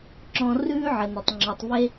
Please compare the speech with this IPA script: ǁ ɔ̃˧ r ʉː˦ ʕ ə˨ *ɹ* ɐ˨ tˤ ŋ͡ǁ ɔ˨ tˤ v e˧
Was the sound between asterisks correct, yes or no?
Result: no